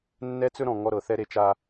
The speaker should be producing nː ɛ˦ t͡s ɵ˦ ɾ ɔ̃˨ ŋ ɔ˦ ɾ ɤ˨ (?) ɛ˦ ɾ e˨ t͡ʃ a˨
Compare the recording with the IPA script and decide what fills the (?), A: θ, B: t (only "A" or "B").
A